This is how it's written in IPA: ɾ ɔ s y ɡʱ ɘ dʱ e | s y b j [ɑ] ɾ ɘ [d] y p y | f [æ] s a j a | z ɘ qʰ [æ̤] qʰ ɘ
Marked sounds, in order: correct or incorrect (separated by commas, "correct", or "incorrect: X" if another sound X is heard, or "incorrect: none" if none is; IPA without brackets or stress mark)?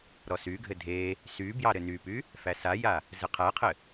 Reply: correct, incorrect: n, correct, incorrect: æ